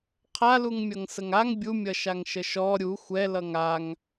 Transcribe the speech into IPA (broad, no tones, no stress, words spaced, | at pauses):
qʰaluŋmʲʌŋ səŋaŋ bʲumʲʌʃaŋ ʃəʃɔ ɾʲu xʷɛ lʌŋaŋ